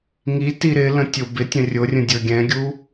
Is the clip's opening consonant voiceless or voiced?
voiced